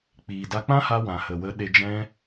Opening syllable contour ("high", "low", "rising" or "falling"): low